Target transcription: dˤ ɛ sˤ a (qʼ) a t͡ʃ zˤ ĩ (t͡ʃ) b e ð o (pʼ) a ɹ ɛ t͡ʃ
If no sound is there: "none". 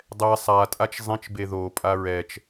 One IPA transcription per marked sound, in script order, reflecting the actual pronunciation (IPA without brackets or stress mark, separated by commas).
tʼ, t͡ʃ, pʼ